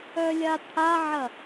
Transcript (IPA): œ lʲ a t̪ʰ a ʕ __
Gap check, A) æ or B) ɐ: B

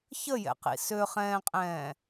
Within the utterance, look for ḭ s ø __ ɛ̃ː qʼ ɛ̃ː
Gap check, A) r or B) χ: B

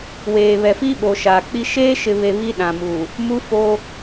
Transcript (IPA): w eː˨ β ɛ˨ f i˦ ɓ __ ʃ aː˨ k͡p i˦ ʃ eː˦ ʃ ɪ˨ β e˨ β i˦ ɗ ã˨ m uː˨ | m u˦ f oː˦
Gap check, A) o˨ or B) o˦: A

